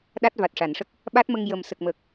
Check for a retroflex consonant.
present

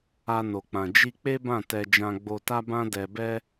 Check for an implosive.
absent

